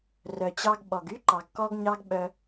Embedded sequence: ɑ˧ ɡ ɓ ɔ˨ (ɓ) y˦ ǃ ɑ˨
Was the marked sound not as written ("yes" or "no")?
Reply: yes